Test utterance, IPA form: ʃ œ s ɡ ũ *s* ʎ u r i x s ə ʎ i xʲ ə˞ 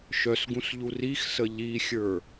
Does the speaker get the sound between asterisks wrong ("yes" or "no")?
no